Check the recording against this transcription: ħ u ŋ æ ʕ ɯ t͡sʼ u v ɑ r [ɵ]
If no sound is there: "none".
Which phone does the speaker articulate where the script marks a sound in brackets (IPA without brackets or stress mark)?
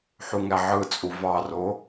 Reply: o